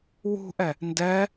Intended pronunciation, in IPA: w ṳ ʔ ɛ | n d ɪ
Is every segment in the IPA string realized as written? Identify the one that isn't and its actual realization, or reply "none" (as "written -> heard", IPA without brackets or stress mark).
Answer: ɪ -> ɛ